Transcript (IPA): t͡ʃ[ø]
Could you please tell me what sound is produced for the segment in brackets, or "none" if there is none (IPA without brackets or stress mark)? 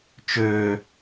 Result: ø